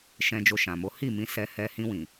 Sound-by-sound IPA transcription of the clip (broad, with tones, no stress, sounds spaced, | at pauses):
ʃ ɛ̃˧ d͡ʒ o˧ ʃ ã˨ m o˨˦ h i˦˨ m ĩ˧ s ɛ˧ h ɛ˧ h ĩ˧ w ĩ˨